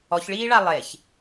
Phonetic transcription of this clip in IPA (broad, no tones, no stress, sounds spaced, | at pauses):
ɔ ç ɭ iː ɭ a lˠ e ç